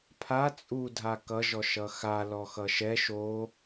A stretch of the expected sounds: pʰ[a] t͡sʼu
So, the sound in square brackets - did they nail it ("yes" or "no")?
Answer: yes